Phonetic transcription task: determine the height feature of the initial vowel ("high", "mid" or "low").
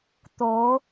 mid